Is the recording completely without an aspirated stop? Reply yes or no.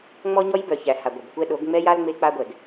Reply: yes